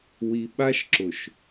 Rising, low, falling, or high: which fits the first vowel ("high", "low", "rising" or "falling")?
low